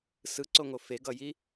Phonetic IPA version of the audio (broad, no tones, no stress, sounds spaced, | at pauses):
s ɯ ǀ o ŋ o f e ɡ ʌ j i